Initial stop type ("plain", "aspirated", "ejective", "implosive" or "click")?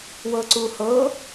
click